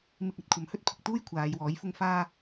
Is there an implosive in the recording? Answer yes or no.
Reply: no